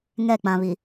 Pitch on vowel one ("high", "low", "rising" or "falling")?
falling